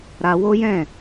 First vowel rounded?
no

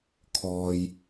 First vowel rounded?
yes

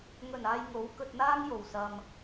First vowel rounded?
yes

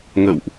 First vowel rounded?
no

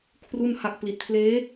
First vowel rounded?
yes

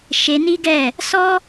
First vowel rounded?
no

